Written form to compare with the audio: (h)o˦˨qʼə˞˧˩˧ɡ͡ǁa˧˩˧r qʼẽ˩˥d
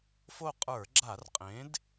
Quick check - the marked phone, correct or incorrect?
incorrect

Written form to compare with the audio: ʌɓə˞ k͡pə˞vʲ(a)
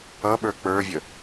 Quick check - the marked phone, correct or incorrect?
incorrect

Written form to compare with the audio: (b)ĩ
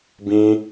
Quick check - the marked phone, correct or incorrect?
correct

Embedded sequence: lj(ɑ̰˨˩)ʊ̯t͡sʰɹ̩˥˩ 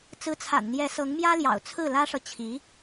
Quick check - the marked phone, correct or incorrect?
correct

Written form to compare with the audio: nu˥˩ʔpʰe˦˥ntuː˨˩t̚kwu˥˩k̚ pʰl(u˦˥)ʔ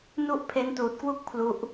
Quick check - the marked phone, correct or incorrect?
correct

